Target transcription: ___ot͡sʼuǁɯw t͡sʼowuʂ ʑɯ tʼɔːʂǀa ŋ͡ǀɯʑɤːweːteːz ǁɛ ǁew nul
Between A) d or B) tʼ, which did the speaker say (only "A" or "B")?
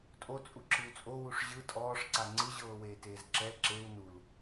B